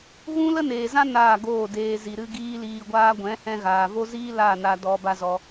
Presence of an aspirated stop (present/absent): absent